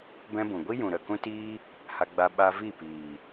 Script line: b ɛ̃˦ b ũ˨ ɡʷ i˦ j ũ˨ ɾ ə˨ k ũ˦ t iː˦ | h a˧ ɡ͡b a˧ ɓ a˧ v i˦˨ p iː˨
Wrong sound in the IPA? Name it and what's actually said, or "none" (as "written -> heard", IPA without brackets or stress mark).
none